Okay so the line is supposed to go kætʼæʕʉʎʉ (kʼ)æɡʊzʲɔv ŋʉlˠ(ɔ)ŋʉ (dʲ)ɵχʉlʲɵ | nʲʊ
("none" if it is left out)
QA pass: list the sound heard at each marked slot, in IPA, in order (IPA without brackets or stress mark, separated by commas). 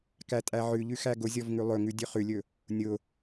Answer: x, ɵ, dʲ